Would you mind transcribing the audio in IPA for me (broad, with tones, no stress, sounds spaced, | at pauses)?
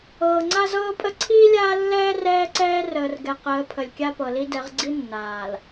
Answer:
ɤː˨ ŋ͡ǀ a˦ z ɤː˦ pʼ ə˦ ǀʰ iː˦ lʲ aː˦ lː ɛː˦ r ɛː˦ ǀ ɛː˦ r əː˨ r ɡ ɛ˨ q əː˨˦ pʰ ə˨ lʲ kʲ a˦ p ɤ˨ l i˦ d ɛ˨˦ ʁ ɡ͡ǀ i˦ nː aː˨ l